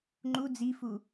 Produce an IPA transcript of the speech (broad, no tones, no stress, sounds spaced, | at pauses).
ŋ͡ǃ u d͡z i f u